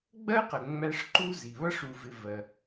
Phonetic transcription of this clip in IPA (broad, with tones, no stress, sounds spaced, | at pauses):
ɡ͡b ɜ˥ q ə˨ ŋ͡m æ˦ ʂ ǃ u˥ z i˩ β ʌ˥ ʂ u˨ v ɪ˨ v ɜ˩